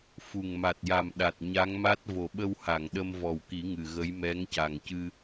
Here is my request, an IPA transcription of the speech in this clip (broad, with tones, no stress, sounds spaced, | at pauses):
f u˨˩ ŋ m a˨˩ t̚ j a˨˩ m ɗ a˨˩ t̚ ɲ a˧˥ ŋ m a˦˥ t̚ v o˨˩ ɓ ə˧ w h a˨˩˨ ŋ ɗ ə˧ m v ɔ˨˩ w k i˨˩˦ ŋ ɨ˨˩ ɣ ə˧˥ j m ɛ˧˥ ŋ c a˨˩ ŋ c ɨ˧